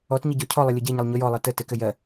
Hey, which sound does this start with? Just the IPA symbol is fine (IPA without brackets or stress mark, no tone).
ɔ